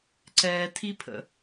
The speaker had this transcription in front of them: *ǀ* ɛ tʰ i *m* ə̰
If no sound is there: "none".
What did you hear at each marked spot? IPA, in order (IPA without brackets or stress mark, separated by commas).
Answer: ǀ, pʰ